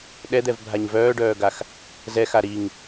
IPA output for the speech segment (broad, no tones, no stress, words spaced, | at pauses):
ɗɛd̪ɛvbʱaɲ vœːɖœːɡax | zɛxa ɾiŋ